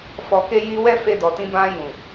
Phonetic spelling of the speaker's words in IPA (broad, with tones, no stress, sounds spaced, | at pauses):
f ɔ˨ k e˧ j i˧ w ɛ˦ f e˧ d ɔ˨ t ĩ˧ b ã˧ j ũ˨